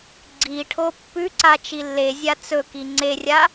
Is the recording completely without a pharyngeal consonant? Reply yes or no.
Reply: yes